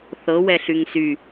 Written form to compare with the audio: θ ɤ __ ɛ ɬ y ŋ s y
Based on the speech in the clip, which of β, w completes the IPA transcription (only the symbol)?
w